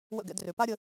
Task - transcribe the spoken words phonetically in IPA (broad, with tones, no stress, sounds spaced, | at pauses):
w ə̰˦˨ ɡ ɛ̰˧ d r ø˨ p a˦ ɾʲ ə˧